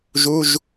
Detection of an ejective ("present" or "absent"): absent